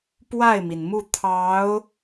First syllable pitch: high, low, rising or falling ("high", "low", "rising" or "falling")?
falling